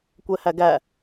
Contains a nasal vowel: no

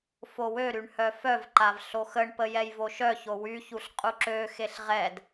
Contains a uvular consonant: yes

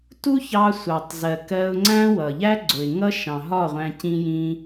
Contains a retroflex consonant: no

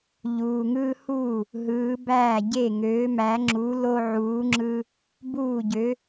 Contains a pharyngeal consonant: yes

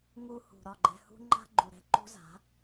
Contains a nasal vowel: no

